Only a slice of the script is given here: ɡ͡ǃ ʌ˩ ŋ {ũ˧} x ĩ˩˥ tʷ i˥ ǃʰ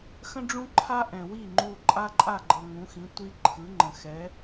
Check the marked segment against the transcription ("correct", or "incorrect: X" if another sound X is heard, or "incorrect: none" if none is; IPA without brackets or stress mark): incorrect: ũ˩˥